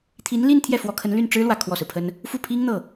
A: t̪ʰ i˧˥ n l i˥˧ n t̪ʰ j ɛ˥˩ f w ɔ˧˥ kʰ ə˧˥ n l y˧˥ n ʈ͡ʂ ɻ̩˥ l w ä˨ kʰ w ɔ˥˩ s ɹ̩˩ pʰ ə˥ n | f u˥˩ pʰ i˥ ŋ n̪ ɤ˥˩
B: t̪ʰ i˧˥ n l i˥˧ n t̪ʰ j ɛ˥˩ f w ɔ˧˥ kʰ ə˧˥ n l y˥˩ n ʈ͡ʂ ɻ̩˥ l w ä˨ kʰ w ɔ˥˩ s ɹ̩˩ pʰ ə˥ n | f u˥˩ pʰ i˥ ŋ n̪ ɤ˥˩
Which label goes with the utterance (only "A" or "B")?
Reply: B